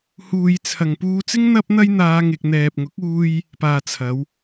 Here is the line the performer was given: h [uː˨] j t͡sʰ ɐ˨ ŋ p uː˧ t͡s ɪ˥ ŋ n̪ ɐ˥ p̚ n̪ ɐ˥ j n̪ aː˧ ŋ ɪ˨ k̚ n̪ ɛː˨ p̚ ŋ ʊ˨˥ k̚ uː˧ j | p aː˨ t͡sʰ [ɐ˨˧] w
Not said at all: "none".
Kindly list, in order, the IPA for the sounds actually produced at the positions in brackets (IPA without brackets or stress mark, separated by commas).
uː˨, ɐ˨˧